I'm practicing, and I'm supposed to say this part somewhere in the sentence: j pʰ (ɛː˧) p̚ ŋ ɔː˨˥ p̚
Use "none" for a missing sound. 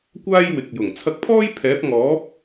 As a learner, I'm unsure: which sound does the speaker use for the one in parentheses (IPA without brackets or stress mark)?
ɛː˨˥